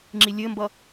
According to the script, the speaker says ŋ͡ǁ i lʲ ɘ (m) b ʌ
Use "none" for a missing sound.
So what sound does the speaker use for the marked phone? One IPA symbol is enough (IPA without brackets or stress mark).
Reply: m